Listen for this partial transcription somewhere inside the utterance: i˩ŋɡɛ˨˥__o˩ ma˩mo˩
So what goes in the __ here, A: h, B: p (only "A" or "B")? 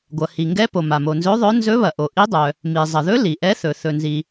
B